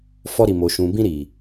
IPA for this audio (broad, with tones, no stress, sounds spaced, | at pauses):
f ɔ˧ ɾ i˨ m o˨ ʃ ũ˨ b ĩ˧ ɾ i˨